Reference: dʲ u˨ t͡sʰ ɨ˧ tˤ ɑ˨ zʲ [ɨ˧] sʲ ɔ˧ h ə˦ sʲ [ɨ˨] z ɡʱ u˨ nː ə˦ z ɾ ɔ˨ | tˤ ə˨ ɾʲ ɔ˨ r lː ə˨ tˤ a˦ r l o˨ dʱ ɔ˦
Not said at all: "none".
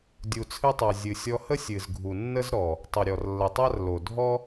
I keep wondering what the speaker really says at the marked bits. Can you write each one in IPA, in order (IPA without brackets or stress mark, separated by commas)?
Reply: ɨ˨, ɨ˨